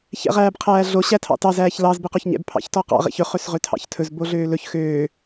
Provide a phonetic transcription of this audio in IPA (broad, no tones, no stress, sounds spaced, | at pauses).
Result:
ç ɛ̰ ʁ æː b qʰ æː ɮ o ɕ æ tʰ ɑ̰ t ɑ z æː ç l ɑ z b e q o ç ɲ ɛ̰ b pʰ ɑ̰ ç t ɔ q ɑ̰ ʁ ḛ ç ɵ χ ø s ʁ ø tʰ ɑ̰ ç tʰ ɵ z b o ɮ øː l ɵ ç x øː